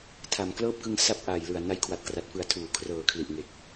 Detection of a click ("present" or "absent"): absent